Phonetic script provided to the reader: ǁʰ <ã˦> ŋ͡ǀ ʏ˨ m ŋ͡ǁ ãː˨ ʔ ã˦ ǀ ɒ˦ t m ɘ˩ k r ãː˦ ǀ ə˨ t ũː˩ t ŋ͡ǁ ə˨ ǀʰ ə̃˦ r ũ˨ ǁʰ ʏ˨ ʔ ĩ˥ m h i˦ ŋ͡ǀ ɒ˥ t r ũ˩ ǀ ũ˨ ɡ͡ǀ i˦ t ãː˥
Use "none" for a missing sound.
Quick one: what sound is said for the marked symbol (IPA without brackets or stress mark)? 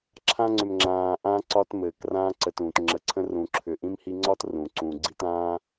ã˦